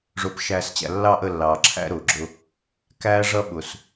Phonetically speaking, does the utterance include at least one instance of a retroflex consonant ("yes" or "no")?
yes